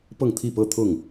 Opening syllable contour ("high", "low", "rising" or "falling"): falling